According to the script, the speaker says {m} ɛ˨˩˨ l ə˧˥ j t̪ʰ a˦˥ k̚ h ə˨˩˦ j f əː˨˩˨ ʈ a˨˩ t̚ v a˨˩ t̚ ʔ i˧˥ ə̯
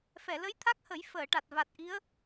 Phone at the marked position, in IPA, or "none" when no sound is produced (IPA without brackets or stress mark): f